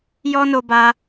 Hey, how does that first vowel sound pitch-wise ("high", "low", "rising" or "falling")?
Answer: high